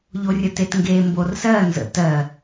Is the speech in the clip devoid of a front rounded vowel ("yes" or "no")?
yes